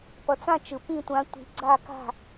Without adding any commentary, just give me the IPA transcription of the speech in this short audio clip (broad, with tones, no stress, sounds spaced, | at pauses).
p ʌ˨˦ t͡s ã˥˨ t͡ʃ ɯ˨˦ p ĩ˥˨ tʷ ã˨˦ tʷ i̤˨˦ ɡ͡ǀ a˥˨ k a̤˥˨